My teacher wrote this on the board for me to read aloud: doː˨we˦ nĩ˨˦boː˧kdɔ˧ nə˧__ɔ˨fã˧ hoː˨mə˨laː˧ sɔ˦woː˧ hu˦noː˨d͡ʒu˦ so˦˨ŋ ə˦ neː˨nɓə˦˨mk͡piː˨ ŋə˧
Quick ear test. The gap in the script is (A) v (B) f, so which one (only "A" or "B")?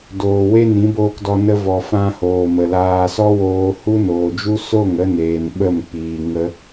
A